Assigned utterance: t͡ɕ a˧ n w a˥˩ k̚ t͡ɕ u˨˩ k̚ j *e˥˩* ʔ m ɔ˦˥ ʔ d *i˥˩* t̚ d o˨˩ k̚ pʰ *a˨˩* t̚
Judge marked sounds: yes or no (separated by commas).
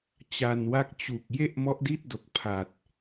yes, yes, yes